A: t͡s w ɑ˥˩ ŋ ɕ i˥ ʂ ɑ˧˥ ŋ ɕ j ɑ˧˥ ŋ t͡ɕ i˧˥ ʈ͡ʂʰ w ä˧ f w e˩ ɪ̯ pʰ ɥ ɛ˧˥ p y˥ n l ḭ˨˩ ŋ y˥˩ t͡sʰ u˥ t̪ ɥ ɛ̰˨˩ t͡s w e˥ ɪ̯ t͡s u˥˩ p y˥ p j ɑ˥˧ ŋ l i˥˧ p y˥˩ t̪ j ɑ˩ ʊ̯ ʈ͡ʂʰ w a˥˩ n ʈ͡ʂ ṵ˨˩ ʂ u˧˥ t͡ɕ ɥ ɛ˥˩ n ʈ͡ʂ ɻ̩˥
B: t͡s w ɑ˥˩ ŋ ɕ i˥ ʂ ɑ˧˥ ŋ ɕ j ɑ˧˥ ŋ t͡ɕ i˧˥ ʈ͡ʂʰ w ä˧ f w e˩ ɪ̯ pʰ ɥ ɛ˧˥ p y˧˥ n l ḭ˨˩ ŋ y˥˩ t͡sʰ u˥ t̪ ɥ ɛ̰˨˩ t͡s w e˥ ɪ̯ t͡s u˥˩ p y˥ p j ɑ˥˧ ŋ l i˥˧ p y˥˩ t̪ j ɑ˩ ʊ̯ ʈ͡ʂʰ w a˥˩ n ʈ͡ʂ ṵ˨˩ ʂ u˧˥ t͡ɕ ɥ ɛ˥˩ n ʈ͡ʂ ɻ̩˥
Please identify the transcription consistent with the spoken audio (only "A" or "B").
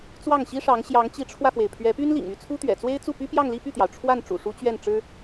A